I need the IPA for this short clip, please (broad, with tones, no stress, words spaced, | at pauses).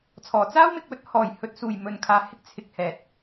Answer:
t͡sʰɔː˨˩t͡saː˥wmɪ˨k̚wɵ˧t̚ hɔː˨˩jhɵ˨t̚suː˨˩j mɵ˨nkʰaː˨hɪ˥k̚ t͡sʰɪ˧k̚hɛː˨t̚